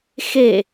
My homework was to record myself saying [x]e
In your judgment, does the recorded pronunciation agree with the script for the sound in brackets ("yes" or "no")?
yes